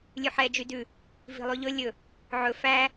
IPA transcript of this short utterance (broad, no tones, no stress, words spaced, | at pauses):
lʲʉħɛ d͡ʒydʉ | vi̤lˠʉʎɵ lʲɵ | ʕɵ fæ